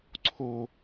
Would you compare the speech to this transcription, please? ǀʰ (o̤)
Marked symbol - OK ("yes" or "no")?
no